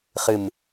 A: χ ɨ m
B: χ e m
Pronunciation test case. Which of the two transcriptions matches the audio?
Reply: A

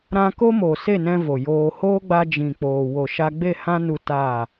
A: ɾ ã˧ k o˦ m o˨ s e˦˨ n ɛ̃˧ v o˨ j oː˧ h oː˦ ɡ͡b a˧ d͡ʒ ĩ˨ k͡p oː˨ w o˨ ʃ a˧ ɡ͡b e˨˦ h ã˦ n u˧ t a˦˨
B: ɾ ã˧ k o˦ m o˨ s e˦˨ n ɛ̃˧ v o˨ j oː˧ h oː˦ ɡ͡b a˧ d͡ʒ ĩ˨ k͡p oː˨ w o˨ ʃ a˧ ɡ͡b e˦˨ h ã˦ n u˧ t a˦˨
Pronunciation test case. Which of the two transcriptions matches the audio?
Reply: B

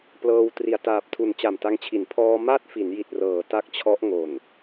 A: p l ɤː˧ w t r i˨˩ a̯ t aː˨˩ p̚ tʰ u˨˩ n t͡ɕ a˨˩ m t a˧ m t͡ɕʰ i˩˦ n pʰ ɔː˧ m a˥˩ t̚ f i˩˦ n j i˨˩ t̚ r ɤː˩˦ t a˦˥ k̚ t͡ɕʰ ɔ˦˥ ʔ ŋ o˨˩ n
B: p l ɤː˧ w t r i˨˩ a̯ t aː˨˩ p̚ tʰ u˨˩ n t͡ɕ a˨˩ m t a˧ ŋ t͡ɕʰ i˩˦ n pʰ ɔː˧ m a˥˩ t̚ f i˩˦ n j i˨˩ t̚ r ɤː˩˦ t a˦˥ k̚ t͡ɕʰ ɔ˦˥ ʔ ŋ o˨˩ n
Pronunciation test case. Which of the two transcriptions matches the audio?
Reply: B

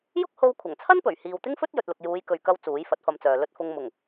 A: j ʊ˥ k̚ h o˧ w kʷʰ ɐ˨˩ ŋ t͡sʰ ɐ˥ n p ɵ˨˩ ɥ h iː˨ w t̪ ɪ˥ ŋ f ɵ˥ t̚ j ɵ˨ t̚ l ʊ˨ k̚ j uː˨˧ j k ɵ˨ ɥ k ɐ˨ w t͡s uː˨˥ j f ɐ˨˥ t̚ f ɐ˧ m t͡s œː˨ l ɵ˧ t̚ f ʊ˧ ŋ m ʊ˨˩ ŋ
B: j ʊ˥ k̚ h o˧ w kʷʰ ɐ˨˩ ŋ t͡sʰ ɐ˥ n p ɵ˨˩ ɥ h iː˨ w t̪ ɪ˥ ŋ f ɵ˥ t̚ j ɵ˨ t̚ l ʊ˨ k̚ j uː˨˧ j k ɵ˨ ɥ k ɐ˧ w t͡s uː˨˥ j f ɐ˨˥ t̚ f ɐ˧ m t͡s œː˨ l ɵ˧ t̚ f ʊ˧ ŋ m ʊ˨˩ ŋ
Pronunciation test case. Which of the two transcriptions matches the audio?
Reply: B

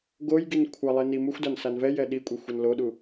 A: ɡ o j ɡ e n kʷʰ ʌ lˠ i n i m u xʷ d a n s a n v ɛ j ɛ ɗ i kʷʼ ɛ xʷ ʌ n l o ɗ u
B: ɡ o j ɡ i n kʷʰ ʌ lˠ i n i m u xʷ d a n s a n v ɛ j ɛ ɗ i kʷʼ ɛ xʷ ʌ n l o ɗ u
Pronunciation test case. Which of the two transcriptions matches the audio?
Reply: B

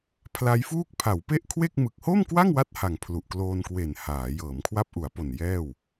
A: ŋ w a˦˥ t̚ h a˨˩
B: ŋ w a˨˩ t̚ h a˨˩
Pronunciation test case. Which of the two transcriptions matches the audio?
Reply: A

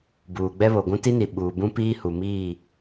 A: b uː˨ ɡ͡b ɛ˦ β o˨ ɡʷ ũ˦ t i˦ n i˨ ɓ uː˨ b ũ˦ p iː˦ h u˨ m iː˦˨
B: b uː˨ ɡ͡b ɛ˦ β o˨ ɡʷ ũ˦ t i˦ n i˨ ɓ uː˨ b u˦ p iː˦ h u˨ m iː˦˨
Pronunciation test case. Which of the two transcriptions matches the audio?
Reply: A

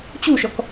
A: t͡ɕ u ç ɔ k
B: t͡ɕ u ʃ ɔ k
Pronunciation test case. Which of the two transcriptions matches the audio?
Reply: B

